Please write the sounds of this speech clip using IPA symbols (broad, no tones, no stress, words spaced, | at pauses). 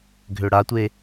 ɡʱøɽatʷe